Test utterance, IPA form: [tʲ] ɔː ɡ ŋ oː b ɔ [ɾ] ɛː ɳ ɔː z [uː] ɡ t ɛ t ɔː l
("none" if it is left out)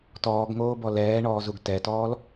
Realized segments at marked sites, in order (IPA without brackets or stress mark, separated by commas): t, l, u